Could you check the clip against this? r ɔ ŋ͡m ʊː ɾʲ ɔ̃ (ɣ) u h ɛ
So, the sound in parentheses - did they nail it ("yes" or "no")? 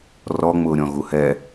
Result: yes